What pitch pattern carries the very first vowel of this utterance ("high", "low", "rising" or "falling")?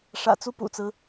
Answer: low